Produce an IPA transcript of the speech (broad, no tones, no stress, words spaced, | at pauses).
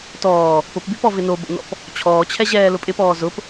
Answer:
tɔː | pʊpbypɔ vɪnobo̰nɔ̰p | t͡ɕʰɔːt͡ɕʰɛʑɛː lʊpʼɪpɔː zʊp